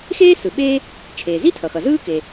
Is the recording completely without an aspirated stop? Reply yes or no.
no